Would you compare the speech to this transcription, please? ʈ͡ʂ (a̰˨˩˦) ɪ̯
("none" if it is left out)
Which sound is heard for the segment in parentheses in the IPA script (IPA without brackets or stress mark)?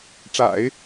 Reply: a̰˨˩˦